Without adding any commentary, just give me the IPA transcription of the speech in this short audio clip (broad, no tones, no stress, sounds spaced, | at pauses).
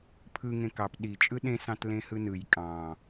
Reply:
pʰ ɯ ŋ ẽ k ɑ p ɗ i t͡ʃʼ ɯ ɗ ẽ s ɑ̃ t l ẽ h ɯ n ɯ j kʼ ɑ̃